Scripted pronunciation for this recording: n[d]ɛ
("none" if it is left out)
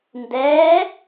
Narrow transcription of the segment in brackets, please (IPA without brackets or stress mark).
d